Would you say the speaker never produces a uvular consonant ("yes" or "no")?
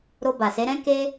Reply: yes